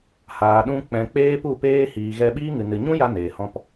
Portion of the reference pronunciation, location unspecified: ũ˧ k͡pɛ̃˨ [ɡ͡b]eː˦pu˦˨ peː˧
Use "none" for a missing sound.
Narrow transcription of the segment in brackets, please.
k͡p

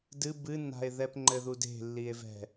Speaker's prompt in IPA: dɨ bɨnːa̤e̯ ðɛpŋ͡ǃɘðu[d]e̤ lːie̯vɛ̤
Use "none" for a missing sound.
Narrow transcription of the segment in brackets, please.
d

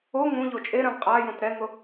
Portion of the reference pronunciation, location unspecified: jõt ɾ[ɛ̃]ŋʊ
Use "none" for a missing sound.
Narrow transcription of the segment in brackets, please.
ɛ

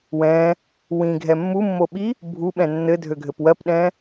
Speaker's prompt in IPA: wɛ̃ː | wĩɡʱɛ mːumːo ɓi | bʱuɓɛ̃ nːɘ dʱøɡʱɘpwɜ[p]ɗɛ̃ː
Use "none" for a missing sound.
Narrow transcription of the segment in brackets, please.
p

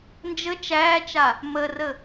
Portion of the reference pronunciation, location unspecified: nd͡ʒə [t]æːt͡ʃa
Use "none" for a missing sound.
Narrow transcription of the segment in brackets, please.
t͡ʃ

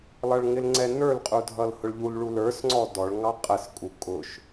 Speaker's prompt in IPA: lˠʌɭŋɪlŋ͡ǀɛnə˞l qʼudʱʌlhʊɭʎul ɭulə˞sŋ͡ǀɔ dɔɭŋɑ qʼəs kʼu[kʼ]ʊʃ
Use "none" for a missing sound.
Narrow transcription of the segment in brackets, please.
kʼ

